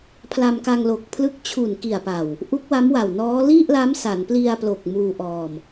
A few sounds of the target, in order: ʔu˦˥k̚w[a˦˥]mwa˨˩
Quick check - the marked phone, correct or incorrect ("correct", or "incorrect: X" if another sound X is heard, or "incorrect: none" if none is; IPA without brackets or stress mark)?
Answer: correct